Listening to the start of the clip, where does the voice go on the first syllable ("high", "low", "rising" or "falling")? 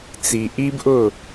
low